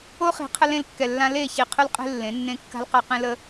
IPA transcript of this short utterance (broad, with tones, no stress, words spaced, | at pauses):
o˦χi̤˨˦ qʰə˦ lẽ˦˨lkːɛ˨lːã˦ le˦˨ çi˨ qʰʊ˦lqʼe̤˦ lːẽ˨˦nːẽ˦ kːa̤˦lqa˦qẽ˦ lə˦